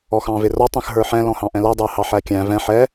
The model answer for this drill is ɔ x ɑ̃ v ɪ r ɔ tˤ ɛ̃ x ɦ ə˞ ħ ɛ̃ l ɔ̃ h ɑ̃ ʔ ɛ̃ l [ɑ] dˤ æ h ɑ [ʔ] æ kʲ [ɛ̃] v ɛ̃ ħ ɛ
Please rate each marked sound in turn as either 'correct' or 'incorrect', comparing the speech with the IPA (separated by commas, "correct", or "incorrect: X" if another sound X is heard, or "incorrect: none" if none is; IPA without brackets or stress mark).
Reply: incorrect: ʌ, incorrect: ħ, incorrect: æ̃